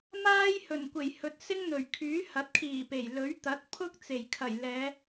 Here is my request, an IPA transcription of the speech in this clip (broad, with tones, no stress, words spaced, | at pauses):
maː˥j hɵ˨˩nkʷe˨˩jhɵ˨t̚ sɪ˥ŋn̪ɵ˨˩ɥ kʰyː˨˥hɐ˨˥t̚kʰiː˨˩ pe˨˩j lɵ˨˥ɥt̪ɐ˨˥t̚pʰʊ˥k̚ t͡se˨˩jkʰɐ˨˩j lɛː˨˧